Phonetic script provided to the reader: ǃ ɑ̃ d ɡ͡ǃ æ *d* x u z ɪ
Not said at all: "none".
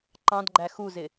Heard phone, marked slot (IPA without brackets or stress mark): none